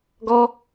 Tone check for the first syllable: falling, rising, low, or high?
high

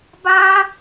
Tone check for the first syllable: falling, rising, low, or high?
high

